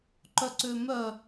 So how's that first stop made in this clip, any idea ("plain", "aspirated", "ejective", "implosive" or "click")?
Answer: click